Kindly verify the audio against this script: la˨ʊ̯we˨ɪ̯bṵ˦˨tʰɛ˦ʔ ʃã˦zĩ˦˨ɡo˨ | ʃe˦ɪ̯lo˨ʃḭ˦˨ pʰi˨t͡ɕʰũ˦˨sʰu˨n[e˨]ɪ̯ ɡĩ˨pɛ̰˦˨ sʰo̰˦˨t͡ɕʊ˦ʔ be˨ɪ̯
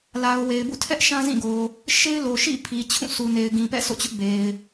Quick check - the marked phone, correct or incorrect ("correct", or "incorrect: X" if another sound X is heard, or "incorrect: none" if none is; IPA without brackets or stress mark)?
correct